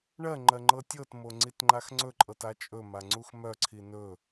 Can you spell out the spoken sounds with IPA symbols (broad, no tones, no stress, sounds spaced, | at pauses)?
ɳ ɜ ŋ͡ǃ ɜ ŋ͡ǃ ɤ tʲ ɤ t m o ŋ͡ǀ i t ŋ͡ǃ a x ŋ͡ǀ ɵ ǃʼ ɤ t a t͡ʃʼ ɵ m a ŋ͡ǀ u x m œ ǀʰ i n ɵ